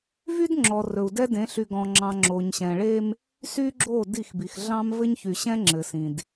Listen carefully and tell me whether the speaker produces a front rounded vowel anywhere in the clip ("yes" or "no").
yes